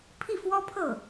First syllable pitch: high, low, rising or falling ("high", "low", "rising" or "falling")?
falling